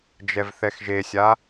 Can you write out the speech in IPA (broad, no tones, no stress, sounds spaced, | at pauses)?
d͡ʒ ɛ v θ ɛ x ʒ e sʲ a